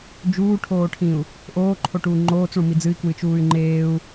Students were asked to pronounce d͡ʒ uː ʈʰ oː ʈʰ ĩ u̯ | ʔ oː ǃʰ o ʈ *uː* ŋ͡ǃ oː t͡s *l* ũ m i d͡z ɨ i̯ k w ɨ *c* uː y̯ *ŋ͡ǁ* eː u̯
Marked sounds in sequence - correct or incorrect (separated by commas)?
correct, incorrect, incorrect, incorrect